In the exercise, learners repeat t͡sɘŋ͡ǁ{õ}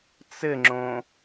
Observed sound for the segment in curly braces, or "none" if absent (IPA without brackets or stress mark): õ